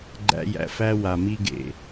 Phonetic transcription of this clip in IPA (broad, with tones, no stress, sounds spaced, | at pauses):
ɡ͡ǃ æ̰˧ j æ̰˨ f æ˦ w a˨ m i˦ ɡ ḛ˨